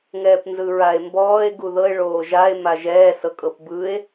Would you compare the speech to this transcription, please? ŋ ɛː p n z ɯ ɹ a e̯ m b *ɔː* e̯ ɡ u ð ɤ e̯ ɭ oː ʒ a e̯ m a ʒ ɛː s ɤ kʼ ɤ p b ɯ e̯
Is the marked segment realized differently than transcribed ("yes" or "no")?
no